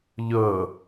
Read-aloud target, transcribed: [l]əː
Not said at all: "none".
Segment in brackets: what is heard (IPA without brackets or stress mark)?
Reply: ʎ